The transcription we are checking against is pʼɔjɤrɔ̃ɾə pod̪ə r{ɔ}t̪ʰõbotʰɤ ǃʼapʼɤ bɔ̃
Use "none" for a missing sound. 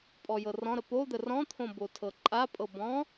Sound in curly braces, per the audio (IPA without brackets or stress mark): ɔ̃